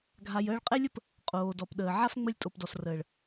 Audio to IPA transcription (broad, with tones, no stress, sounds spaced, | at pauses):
ɡʱ a˨ j əː˧ ɭ qʼ ɛ˦ lʲ ə˦ p | qʼ oː˨ d ɔ˨ p ɗ əː˨ ʕ a˦ f ŋ͡m ə˧ lʲ tʼ o˨ p d ɔ˨ s r əː˨ ɭ